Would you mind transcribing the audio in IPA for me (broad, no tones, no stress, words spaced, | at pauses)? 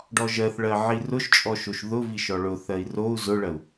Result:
ɖɔʒɜθɭɜ ʕirʊʃt͡ʃʼɔ ʃoʃðʊvi ʃɔɭʊθɜi̯ rou̯ zʊɭɜu̯